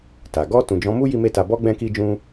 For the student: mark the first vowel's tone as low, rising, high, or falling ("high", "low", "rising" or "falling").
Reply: low